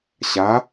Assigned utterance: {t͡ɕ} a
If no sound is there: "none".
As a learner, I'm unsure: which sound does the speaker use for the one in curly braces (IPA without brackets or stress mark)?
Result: ɕ